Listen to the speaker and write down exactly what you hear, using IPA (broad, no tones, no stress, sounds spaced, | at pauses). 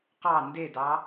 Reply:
q ɑ n d e d ɑ